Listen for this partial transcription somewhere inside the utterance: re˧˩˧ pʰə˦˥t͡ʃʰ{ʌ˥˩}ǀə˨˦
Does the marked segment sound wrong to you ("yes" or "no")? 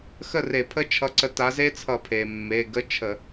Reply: yes